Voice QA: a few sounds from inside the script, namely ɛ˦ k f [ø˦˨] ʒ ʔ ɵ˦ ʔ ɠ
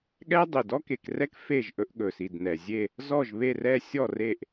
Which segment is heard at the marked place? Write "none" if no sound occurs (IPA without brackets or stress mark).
e˦˨